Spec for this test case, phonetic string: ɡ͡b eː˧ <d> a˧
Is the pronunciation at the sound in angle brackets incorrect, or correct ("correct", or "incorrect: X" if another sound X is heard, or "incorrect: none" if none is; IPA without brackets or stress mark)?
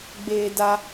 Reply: correct